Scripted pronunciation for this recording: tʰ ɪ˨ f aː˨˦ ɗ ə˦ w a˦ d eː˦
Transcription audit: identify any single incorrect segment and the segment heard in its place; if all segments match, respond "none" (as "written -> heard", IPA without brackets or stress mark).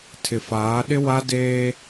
ə˦ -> ɪ˦